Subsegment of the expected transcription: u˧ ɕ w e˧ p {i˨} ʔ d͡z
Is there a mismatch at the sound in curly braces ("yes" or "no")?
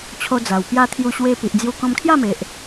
no